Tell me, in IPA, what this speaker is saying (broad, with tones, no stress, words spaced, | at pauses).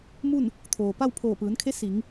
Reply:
mu˥˨n | t̪ʰoː˩pa˥˨w pʰoː˧˩pɯː˩˧nkʰe˧˥ si˩˧ŋ